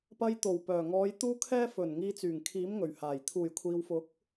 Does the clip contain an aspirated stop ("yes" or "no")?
yes